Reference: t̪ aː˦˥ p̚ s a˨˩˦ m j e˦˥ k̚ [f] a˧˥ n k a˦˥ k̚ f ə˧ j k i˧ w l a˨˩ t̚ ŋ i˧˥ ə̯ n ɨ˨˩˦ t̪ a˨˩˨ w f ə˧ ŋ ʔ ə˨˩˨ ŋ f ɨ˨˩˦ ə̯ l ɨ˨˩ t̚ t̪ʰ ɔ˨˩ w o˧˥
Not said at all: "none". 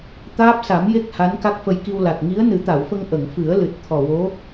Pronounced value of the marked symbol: h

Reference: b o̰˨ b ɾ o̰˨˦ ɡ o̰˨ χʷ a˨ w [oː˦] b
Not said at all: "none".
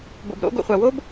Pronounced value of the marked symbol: o˦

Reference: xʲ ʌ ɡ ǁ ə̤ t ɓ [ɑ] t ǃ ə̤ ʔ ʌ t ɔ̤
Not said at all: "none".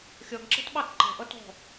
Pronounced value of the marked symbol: ɑ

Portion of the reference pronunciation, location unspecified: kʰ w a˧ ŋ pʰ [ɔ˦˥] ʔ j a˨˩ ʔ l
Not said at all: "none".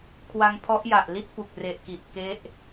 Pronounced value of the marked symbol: ɔ˦˥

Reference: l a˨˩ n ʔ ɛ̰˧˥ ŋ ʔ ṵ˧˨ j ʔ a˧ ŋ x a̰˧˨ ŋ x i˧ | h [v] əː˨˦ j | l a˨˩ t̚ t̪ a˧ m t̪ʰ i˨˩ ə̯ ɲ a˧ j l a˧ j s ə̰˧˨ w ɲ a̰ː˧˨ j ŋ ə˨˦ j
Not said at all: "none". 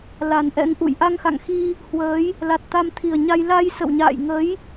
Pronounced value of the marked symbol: w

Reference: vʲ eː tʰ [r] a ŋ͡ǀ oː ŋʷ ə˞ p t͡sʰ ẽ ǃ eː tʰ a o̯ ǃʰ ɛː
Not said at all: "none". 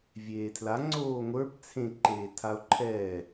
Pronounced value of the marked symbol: l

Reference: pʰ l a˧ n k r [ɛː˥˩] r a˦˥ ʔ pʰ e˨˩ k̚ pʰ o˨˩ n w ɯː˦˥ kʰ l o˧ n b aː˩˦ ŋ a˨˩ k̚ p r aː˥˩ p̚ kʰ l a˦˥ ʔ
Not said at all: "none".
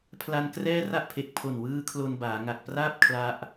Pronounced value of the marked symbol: ɛː˥˩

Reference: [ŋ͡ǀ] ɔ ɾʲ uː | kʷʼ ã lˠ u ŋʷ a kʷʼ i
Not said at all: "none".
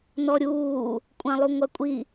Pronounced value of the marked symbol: n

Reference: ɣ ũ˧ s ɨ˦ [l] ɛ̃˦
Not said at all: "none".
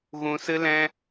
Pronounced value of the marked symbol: l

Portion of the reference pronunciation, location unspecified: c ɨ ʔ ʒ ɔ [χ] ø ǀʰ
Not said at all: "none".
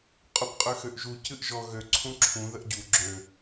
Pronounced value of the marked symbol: ɣ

